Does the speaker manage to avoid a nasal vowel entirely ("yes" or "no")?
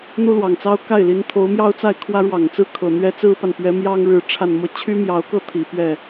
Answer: yes